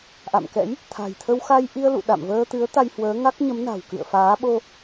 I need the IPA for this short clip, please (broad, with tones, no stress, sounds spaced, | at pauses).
ʔ a̰˧˨ m k ɛ̰˧˥ j | t̪ʰ a̤˨˩ j t̪ʰ ə˧ w x a˧ j ʔ i˧ ə̯ l ṵ˧˨ ɗ a̰˧˨ m v əː˧ t̪ ɨ˨˦ ə̯ t̪ a˧ j h w əː˨˦ ŋ a˦˥ k̚ ɲ ə˨˦ m n a̤˨˩ w k ɨ̰˧˨ ə̯ f aː˨˦ ɓ o˧